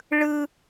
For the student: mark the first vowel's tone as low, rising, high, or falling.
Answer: high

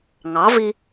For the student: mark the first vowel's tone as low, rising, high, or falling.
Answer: rising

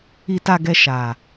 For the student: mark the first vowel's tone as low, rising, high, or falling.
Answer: low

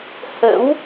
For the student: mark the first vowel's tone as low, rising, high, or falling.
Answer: rising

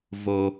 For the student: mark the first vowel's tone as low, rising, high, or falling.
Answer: high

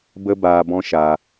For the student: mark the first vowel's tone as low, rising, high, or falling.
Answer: high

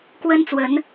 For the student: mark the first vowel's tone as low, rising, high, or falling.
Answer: high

